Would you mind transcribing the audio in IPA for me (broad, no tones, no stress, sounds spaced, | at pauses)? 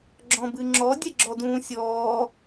ɡ͡ǁ ɔ̃ b ɨ ŋ͡ǁ ɔ dʲ ɛ ɡ͡ǁ ɔ d ũː sʲ ɔː